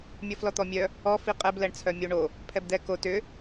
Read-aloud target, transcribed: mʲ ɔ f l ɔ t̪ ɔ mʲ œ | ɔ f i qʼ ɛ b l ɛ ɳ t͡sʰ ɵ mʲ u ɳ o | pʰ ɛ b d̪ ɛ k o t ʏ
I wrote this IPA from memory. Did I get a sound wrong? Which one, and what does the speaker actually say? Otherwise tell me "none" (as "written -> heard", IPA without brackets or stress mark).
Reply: ɵ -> œ